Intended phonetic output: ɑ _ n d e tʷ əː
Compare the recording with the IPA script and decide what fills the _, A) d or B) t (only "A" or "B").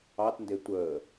B